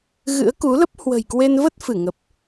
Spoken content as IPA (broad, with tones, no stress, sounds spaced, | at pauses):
ɣ ɨ̰˧˥ ə̯ k u˨˦ l ə˦˥ p̚ h w ə̤˨˩ j k w e˧ n v ə˦˥ t̚ f ɨ˧˩ ŋ ə˨˩ p̚